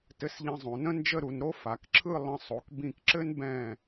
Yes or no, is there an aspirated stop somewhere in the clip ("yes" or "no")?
yes